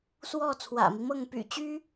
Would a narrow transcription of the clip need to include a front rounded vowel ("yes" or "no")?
yes